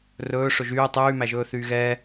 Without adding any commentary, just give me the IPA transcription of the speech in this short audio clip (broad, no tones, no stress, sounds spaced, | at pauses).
r ɵː ʂ ɵ ʒ yː tˤ yː m æ ʒ ɵː θ yː ɣ ɛː